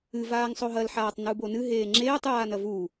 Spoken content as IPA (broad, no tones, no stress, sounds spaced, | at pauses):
ɨ v aː ŋ sˤ o ɦ ɐ l ħ aː tˤ n u b o n ɨ ɦ eː ŋ͡ǁ eː tˤ j aː n ɐ v u